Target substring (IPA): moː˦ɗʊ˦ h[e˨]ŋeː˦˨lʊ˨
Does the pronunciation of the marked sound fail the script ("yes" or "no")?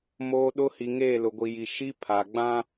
yes